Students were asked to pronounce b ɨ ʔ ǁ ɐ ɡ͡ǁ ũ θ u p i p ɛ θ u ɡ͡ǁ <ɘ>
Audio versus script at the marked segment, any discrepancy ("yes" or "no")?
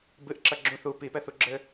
no